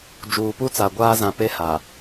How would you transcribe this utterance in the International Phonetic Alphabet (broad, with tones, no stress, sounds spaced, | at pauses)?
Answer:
d͡ʒ uː˨ p u˦ t͡s a˨ ɡʷ aː˦ z ã˨ p e˦ h a˨